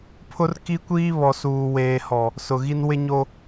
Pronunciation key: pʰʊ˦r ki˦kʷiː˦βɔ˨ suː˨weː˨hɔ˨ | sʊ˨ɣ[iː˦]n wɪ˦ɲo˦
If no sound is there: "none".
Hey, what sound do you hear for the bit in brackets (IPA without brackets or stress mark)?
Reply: i˦